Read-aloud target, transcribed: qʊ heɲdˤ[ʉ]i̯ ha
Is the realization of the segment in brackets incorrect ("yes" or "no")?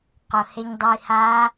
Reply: yes